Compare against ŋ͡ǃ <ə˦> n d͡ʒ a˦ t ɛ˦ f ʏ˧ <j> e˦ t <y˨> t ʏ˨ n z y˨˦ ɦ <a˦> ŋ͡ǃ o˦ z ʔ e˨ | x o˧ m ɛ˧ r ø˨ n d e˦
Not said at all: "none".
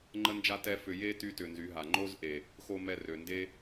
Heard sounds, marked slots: ə˦, j, y˧, a˨

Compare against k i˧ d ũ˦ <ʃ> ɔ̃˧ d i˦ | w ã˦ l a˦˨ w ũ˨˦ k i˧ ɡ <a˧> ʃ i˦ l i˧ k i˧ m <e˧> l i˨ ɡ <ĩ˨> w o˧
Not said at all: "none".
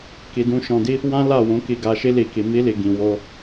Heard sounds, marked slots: ʃ, a˧, i˧, ĩ˨

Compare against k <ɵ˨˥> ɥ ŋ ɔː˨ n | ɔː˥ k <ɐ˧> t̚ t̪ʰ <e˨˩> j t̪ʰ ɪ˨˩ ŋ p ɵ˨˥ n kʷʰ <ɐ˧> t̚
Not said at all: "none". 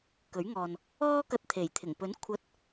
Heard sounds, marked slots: ɵ˨˥, ɐ˧, e˨˩, ɐ˧

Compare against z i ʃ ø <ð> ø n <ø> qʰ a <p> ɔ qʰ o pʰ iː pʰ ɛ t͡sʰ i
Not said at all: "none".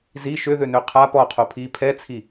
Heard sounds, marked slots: ð, ø, p

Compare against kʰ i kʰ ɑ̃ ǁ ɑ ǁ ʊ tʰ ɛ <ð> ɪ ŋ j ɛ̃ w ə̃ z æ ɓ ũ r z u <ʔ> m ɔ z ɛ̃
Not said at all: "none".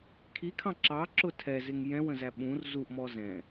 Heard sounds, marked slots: z, ʔ

